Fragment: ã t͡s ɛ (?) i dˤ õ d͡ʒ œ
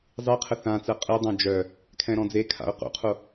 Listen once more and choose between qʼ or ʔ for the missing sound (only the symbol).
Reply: qʼ